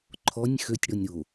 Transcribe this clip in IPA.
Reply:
ǃʰ ɔ nʲ x ø tʲ ɽ ɔ nʲ ɾ o

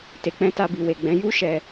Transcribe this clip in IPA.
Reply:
t e˨ k͡p ɛ̃˧ t a˧ b i˨ w e˨ ɡ͡b ɛ̃˨˦ j u˦ ʃ ɛ˧

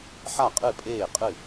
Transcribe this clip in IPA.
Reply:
ħ a˥˩ qʼ ɨ˥˩ pʼ eː˥˩ qʼ ɨ˥˩

